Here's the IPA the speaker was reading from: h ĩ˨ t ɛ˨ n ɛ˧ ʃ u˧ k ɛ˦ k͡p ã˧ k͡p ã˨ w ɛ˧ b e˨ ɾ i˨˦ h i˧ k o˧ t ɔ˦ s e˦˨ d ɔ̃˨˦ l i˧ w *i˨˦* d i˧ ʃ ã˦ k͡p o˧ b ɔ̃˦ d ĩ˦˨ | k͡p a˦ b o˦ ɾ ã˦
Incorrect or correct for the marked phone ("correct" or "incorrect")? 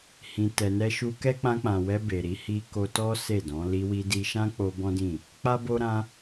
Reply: incorrect